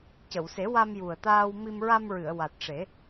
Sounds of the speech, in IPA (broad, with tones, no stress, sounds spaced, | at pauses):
c ə˨˩˨ w s e˨˩˦ w a˧ m j u˨˩ ə̯ t̪ aː˧ w m i˧ m ɹ a˧ m ɹ ɨ˨˩˨ ə̯ w a˨˩ t̚ ʂ e˨˩˦